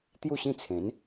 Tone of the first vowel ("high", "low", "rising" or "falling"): falling